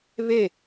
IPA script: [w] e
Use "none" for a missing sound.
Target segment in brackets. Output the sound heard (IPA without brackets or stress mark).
β